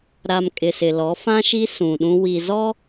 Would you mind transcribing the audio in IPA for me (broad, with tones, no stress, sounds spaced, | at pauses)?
ɾ a˨ m kʼ ɪ˨ s ɪ˨ l ɔ˨˦ f ã˦ ʃ i˦ s ũ˨ ɗ ũ˦ w i˨ z ɔ˦